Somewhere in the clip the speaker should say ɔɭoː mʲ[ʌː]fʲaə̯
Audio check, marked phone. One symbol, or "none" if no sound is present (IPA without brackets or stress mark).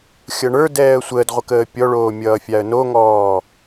ʌː